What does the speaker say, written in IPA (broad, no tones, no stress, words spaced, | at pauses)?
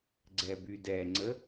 ɡ͡ǀɛbydɛŋ͡ǀə